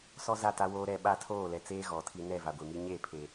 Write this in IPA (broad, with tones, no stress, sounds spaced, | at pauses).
s ɔ˦ z a˦˨ t a˦ w oː˦ ɾ ɛ˦ ɓ a˦ tʰ oː˦˨ l ɛ˨ t͡s eː˦ ɣ ɔ˨˦ tʰ i˦ n ɛ˦˨ v a˨ ɡʷ e˨ m i˦ ɲ e˦˨ pʰ e˨